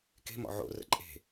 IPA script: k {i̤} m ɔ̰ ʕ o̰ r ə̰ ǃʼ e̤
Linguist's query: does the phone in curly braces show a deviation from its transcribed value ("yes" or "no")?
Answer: yes